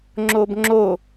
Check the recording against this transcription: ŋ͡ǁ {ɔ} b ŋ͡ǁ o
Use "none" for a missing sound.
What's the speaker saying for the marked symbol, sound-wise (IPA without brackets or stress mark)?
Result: o